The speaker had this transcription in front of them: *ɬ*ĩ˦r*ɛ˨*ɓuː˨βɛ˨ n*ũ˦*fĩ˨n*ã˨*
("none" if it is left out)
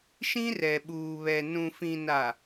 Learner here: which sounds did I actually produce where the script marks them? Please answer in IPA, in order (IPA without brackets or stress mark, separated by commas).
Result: ʃ, ɛ˨, ũ˨, a˨